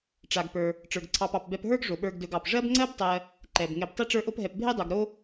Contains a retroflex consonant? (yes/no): yes